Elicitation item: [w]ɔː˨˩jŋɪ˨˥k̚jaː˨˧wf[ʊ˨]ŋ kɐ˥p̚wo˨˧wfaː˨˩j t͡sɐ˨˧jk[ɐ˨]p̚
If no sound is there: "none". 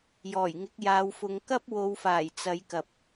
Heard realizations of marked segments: j, ʊ˨˧, ɐ˨

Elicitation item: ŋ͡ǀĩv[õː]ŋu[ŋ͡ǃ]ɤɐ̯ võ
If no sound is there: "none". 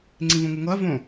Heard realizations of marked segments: õ, ŋ

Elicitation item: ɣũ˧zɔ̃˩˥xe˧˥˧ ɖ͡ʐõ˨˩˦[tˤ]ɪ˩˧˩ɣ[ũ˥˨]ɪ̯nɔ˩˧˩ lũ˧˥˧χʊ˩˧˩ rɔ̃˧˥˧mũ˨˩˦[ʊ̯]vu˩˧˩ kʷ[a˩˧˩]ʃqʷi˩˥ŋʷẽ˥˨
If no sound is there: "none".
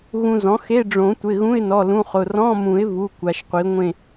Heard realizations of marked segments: tʷ, ũ˧˥˧, ɪ̯, a˩˧˩

